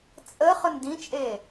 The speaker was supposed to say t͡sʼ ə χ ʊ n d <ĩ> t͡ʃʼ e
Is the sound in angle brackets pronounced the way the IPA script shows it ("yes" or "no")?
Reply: yes